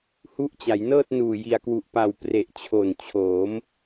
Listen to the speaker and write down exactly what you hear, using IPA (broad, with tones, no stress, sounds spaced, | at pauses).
h u˦˥ ʔ t͡ɕ a˩˦ j n ɤː˥˩ t̚ n uː˨˩ j i˨˩ a̯ k w u˨˩ ʔ p a˨˩ w p r e˨˩ ʔ t͡ɕʰ o˨˩ n t͡ɕʰ oː˩˦ m